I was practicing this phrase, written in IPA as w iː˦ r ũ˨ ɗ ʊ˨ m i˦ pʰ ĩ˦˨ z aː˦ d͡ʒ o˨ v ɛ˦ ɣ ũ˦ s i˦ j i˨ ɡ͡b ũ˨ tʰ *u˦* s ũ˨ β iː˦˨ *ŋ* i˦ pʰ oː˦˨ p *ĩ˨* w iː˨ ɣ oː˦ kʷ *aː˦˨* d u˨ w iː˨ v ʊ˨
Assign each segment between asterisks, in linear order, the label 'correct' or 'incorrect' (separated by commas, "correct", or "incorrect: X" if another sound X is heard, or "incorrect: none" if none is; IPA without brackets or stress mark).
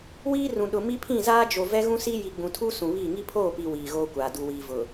correct, correct, incorrect: i˨, incorrect: aː˨